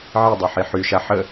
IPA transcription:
ʕidˤøħi ħyʃa ħə

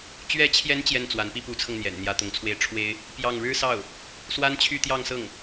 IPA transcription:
t͡ɕɥɛ˧˥t͡ɕʰjɛ˧˥n t͡ɕjɛ˥˩nt͡swa˧˥npi˥ pu˧˥t͡sʰɤ˧ŋn̪jɛ̰˨˩n n̪jä˧˥t̪ʊ˧˥ŋt͡sʰwe˥˩ɪ̯ ʈ͡ʂʰwe˥ɪ̯ | pjɑ˥˩ŋ ɻɻ̩˥sɑ˥˩ʊ̯ | swa˥nt͡ɕʰy˥˧t̪jɑ˥˧ŋsɤ˥˩ŋ

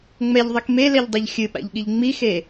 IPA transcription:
ŋ͡mɛʎðˤik melɛʎdˤeʎ xʲɨɓa̰ʎɠiʎ ŋ͡mixe

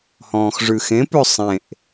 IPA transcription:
hɔ̃ːxʐʉxẽpʉ sˤẽʔ

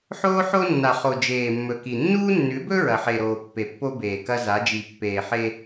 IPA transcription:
ħoː˦ħo˦nːa˨χo˨ d͡ʒeː˨mːɵ˨ ki˨ nːuː˦nːʉ˨˦bɵ˦ ɹɐ˨ħe˨ɾoː˨ pːe˨pːo˦ beː˨kɐ˦za˨˦ d͡ʒi˨pːeː˨ ħe˦

